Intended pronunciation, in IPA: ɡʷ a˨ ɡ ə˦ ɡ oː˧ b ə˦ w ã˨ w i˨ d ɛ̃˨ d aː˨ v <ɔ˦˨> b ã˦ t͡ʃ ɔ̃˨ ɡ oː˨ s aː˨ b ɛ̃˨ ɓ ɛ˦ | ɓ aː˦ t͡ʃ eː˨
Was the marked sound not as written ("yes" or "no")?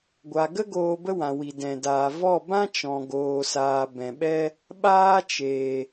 no